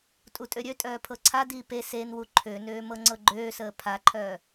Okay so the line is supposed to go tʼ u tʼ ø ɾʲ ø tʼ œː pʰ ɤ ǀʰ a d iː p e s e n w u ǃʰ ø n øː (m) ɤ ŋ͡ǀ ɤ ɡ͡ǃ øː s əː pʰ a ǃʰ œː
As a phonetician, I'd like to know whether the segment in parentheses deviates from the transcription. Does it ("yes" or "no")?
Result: no